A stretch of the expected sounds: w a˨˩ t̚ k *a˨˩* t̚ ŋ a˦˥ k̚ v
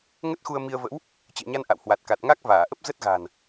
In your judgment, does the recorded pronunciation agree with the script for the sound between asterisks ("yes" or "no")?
yes